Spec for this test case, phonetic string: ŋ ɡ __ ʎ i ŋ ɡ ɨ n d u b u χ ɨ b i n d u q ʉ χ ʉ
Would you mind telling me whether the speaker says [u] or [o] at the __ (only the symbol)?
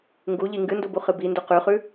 u